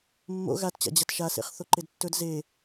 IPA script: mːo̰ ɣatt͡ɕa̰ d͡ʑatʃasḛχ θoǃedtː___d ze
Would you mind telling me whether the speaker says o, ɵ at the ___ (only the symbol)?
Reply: ɵ